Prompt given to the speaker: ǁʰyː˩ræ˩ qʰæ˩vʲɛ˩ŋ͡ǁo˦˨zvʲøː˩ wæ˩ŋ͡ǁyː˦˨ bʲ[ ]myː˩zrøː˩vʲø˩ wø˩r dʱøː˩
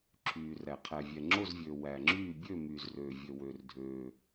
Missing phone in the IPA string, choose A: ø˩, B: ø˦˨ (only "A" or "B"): B